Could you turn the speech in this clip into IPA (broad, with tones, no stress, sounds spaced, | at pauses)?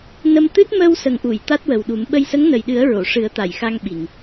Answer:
n ə˧ m t̪ ɨ˦˥ t̚ m əː˧ w s ə˨˩ ŋ ʔ u˨˩˨ j t̪ a˦˥ t̚ w ə˨˩ w ɗ u˨˩˦ m ɓ ə˧ j s ə˧˥ ŋ n ə˨˩ j ɗ ɨ˨˩˦ ə̯ ɹ o˨˩˨ ʂ ɨ˨˩˦ ə̯ t̪ a˨˩˨ j x a˧ ŋ ɓ i˨˩˨ ŋ